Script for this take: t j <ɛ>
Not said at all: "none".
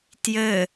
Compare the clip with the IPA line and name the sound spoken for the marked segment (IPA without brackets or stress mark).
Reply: ɘ